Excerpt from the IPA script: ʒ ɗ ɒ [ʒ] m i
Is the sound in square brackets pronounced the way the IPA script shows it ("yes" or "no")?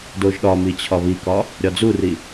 no